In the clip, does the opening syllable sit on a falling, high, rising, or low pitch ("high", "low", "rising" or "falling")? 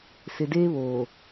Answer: low